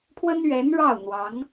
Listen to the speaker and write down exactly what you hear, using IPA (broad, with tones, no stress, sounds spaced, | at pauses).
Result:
pʰ w ə˥ n ɥ ɛ˧˥ n ɻ ɑ˥˩ ʊ̯ n̪ w ɑ˧˥ ŋ